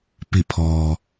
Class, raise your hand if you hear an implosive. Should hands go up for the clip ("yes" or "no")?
no